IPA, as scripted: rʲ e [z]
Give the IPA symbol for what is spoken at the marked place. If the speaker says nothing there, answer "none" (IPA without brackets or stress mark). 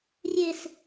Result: s